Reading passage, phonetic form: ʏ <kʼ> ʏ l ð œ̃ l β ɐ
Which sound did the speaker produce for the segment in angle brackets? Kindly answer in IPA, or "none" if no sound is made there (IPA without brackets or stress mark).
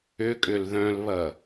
kʼ